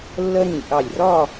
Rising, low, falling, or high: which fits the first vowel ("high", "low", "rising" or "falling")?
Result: high